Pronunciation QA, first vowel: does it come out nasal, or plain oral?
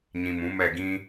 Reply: nasal